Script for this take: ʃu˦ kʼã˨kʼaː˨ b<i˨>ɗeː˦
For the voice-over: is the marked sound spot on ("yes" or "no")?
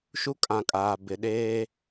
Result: no